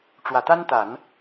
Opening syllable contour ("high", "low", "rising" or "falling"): low